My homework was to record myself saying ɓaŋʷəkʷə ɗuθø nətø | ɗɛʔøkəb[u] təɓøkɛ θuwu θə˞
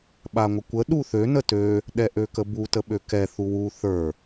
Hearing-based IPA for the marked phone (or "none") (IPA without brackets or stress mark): u